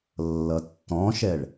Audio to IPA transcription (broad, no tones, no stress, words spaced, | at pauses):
lːʌtːɔ̃ʃɛɭ